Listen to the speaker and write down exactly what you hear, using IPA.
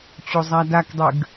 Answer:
t͡ɕ o zˤ a d a k dˤ ʉ ɡ

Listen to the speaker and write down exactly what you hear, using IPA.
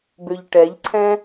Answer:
b ø ʎ ʈ ɛ ʎ ǀʰ ɛ̃

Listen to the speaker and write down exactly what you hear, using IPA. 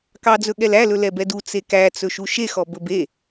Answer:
k ɑ d͡z ɵ ɠ ɛ l æ l ɵ l ɛ b ɛ d u t͡s e k æ t͡s ɵ ʃ u ʃ e x ɔ b ɵ b e

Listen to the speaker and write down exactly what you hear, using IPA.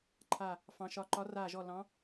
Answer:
ǃʰ a˦˨ | f ɑ̃˧˥ ʃ ɒ˧˥ ǃ ɒ˧˥ r aː˦˨ ʒ ɔ˦˨ l ɑ̃˧˥

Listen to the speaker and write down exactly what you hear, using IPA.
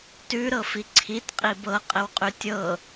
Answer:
t ʉ ɾ ɤ f i ǀʰ i t qʼ i b ɤ qʼ ɘ w qʼ ʉ tʲ ɤ

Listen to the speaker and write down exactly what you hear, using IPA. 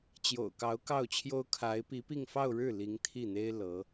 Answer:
t͡ɕ j o̰˨˩ ʊ̯ k ɑ˧˥ ʊ̯ k ɑ˥˩ ʊ̯ t͡ɕʰ j o˥ ʊ̯ kʰ a˧˥ ɪ̯ p i˧˥ p i˥˧ ŋ f ɑ˥˧ ʊ̯ ɻ ɻ̩˥˩ l i˧˥ ŋ t̪ʰ i˥˩ n̪ e˥ ɪ̯ l ɤ˧˥

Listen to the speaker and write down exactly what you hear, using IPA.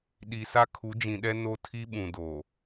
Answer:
ɗ i˨ s a˦ kʰ u˨˦ d͡ʒ ĩ˨ ɗ ɛ˦ n o˦ tʰ i˦ ɓ ũ˨ d o˨

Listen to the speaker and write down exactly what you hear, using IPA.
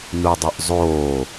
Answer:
n u dˤ ʉ ʔ zˤ oː

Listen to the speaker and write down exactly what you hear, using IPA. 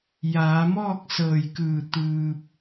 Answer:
j aː˩˧ m ɔː˥˨ k̚ s ɤː˧˩ j k ɯː˧˩ t̪ ɯː˧ p̚

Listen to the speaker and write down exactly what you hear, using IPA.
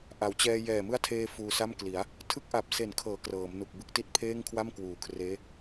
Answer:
ʔ a˩˦ w t͡ɕ ɛː˧ j ɛː˨˩ m ɯ˦˥ a̯ tʰ eː˧ f uː˧ s a˥˩ m k l i˩˦ a̯ | tʰ ɯ˦˥ k̚ ʔ a˨˩ p̚ s e˨˩ n kʰ ɤː˩˦ k r ɤː˩˦ m n u˨˩ k̚ b ɯ˥˩ k̚ t i˦˥ t̚ pʰ eː˥˩ ŋ kʰ w a˥˩ m k w uː˨˩ kʰ r eː˦˥

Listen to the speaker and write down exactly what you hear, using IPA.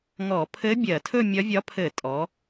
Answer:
ŋ ɔ˧˩˧ pʰ ɘ˧˥ bʲ ɜ˧˩˧ tʰ ɵ˥˧ mʲ ɒ˧˥ vʲ ɒ˧˥ pʰ ɘ˧˩˧ tʼ ɔ˩˧

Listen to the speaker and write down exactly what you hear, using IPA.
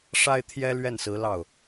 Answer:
ʂ a˥ ɪ̯ t̪ʰ j ɛ˥ l ɥ ɛ˥˩ n s ɹ̩˧˥ l ɑ˥˩ ʊ̯

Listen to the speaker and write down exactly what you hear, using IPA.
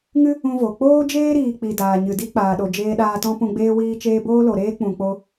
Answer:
ŋ ɨ˦ | ũ˦ v o˨ k͡p oː˦ d͡ʒ eː˦ ɾ iː˨ k͡p i˨ d aː˨ ɲ ɨ˨ d i˦ k͡p aː˨ ɗ o˨ d͡ʒ eː˧ ɗ aː˧ t ɔ̃˦ p ũ˧ ɡ͡b eː˦ w iː˦ t͡ʃ eː˦ b oː˦ l o˨ ɾ eː˦ k͡p ũ˨ k͡p o˧

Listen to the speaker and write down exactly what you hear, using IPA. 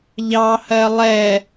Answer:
ʎ ɑ h ɜ lˠ ɛ

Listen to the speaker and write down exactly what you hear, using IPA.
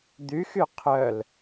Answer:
d̪ y x y qʰ œ l

